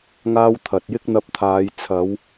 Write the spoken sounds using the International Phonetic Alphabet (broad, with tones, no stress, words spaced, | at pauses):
ŋaː˥w t̪ʰɐ˨t̚jɪ˥k̚n̪ɐ˧p̚t̪ʰaː˨˧j t͡sʰɐ˨˧w